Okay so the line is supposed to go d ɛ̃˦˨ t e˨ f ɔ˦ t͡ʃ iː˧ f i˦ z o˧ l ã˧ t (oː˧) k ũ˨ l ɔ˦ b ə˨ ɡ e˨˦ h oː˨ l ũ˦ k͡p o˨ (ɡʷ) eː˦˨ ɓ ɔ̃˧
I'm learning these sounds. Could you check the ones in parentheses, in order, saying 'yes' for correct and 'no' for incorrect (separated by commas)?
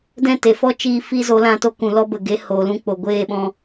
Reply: no, yes